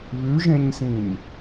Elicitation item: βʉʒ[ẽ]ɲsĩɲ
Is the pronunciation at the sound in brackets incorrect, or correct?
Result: correct